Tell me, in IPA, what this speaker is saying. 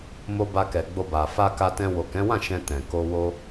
m o˧ b a˧ k ɛ˨ ɡ͡b o˧ b a˨ f a˧ k a˧ t ɛ̃˧ w o˨ k ɛ̃˨˦ w ã˦˨ ʃ ɛ̃˧ t ɛ̃˨ k o˧ w o˧

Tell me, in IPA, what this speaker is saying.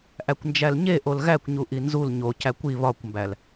ʔ æ kʷ n d͡ʒ æ l ɲ e ʔ o l ɣ æ kʷ ɲ u ʔ i n z u l ɲ o c æ kʷ i β ɒ kʷ m b æ l

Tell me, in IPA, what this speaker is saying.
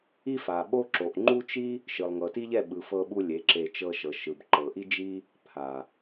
i˦ f a˨ ɓ o˦ ǁ o˨ ʔ ŋ͡ǃ u˦ t͡ʃ i˦ | ʃ ɯ˨ lˠ ŋ ɤ˨ t i˦ ʎ ɛ˦˨ ɓ ɯ˨ f ɤ˧ ɓ u˧ lʲ e˨˦ ǁ e˧ t͡ʃ ɤ˧ ʃ ɤ˨ ʃ ɯ˨ b ǃ ɤ˨ ʔ i˦ d͡ʒ i˦ | pʰ a˨

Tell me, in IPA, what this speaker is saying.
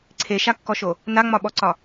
ǀʰ e ʃ a kː ɔ ʃ o | n a ŋ͡m ɒ ɓ ɔ ǀ ɒ

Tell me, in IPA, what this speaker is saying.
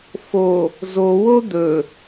f o | z o w o d̪ ɵ

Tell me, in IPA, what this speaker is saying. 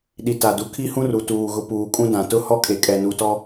ɗ i˨ t a˨ d u˨ kʰ i˦ h ũ˦ r u˨ t uː˨ ɣ ʊ˨ p uː˨ kʼ ũ˦ d ã˨ t ʊ˦ h ɔ˦ kʼ e˨ kʼ ɛ˨ n u˨ t ɔ˦

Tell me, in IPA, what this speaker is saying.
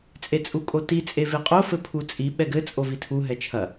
t͡sʼ e t͡sʼ u kʼ o t i t͡sʼ e v e qʼ o f ɘ pʰ u t͡sʼ i ɓ ɛ ɡ ɘ t͡sʼ o v i tʰ u ɦ ɛ t͡ʃʰ ɐ

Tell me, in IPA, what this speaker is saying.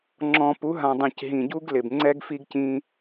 ŋ͡ǁ ɔ̃˨ p u˨˦ ɦ ã˨ dˤ ĩ˨ c ɦ ĩ˨ ɟ u˦ ɡ l ɪ˨ b ŋ͡ǀ ɛ˦ ɡ f i˦ ɡ c ĩ˦

